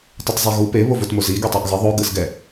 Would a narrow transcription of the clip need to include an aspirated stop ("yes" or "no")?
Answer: no